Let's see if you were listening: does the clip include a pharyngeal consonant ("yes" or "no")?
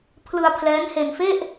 no